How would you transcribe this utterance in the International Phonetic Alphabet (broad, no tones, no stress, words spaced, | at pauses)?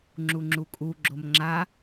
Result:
ŋ͡ǁuŋ͡ǁukʼu ɡ͡ǁomŋ͡ǁa